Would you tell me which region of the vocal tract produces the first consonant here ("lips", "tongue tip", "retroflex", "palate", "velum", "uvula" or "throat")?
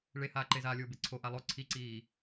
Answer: retroflex